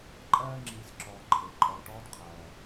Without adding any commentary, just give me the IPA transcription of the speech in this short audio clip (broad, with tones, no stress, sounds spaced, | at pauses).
ǃʼ ɜː˥ ŋ͡ǁ iː˨ s ǁ ɔː˨ ǃʰ e˩ ǃʼ ɔ˨ l ʈ ɔː˦ d qʰ ɜː˩